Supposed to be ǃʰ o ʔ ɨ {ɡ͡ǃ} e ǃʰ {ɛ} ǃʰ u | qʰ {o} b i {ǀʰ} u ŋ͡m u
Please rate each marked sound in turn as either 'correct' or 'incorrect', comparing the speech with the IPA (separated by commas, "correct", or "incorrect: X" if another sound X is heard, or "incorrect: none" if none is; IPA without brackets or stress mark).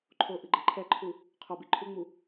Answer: correct, correct, correct, incorrect: ǃʰ